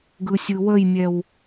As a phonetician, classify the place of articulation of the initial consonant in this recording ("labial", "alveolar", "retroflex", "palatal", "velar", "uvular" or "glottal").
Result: velar